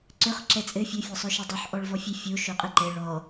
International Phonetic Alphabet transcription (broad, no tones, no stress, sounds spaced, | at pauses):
ǀ ɵ χ ǁ ɛ t͡sʼ ɘ fʲ ɵ fʲ ɔ sˤ ɵ ʃ ɛ dˤ o ħ ʔ ɔ ɭ v ɔ fʲ ɛ fʲ o ʃ o qʼ ɘ ǃ ɛ ɭ ɔ